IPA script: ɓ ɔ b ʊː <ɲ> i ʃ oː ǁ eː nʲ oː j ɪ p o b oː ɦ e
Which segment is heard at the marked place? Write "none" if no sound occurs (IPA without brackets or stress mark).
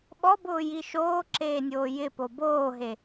j